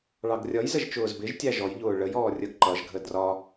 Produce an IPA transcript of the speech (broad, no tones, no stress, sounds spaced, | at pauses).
ɭ ɑ ɡ rʲ ʌ j z ə ʒ t͡ʃ ʊː z b ɪ ʒ tʲ æ ʒ ɔ j ʎ ʊː ɭ ə j ɔː rʲ ə ɡ ǃ ʌ ʒ ɡʱ ə d r ɒ